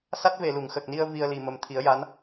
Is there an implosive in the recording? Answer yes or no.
no